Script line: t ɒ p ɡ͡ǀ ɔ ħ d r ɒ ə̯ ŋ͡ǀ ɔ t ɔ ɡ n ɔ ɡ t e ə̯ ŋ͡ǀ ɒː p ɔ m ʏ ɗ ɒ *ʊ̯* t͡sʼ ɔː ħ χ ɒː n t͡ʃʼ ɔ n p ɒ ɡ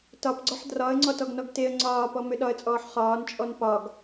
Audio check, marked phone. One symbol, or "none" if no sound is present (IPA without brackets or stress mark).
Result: ə̯